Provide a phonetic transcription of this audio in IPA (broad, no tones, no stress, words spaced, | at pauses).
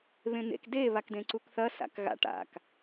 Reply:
βẽn̪ḛk de βakdẽǀukθɐ sa̰kɣa̰ ʈa̰k